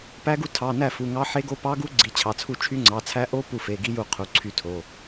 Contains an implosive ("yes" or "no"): no